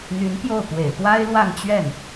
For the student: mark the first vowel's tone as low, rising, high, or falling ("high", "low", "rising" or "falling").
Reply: rising